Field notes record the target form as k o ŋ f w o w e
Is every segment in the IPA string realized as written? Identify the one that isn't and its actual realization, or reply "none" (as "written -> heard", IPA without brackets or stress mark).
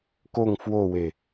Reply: none